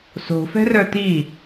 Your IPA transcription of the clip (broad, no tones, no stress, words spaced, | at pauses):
so̤ fɛ̤rœt̪i